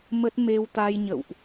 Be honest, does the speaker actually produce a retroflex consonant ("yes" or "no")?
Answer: no